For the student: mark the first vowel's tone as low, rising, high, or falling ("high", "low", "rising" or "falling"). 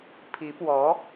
rising